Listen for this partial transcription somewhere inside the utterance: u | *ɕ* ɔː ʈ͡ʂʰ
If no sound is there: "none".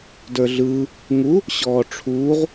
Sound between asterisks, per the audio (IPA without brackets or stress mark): ɕ